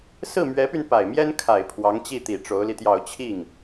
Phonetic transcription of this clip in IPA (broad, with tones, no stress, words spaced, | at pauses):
sɹ̩˥˩mɥɛ˧˥py˧n pa˨˩ɪ̯mjɛ˥nkʰa˨˩ɪ̯ pʰwɑ˧˥ŋt͡ɕi˥˩t̪i˨˩ ʈ͡ʂo˧˥ʊ̯li˧t̪jɑ˥˧ʊ̯ t͡ɕʰi˥˩ŋ